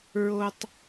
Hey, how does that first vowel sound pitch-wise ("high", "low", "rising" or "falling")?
high